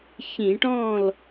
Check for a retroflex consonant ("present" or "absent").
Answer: present